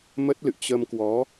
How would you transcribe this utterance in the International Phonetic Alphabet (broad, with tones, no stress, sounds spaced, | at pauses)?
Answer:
m ə˦˥ t̚ l ɨ̰˧˨ t͡ɕ ə˧ m k w ɔ˨˦